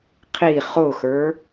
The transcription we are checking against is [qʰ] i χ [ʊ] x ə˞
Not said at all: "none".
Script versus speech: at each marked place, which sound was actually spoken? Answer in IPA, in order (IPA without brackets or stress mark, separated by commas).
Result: qʰ, ʊ